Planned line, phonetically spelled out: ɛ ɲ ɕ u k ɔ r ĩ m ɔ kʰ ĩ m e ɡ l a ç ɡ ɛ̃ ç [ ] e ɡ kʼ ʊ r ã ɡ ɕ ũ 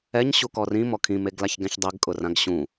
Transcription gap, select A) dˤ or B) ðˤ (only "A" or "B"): A